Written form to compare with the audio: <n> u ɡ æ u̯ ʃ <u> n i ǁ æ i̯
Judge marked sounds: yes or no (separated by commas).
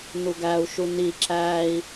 yes, yes